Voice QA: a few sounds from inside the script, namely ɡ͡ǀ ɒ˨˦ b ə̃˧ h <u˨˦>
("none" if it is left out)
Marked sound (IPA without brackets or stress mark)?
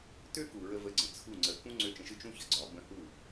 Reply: u˦˨